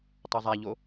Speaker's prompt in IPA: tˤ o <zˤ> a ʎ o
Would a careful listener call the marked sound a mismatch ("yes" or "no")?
no